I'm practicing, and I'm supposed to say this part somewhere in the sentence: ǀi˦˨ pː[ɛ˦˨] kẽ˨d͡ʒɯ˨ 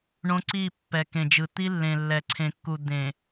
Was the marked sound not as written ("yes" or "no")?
yes